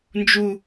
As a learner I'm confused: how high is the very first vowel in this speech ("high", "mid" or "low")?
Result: high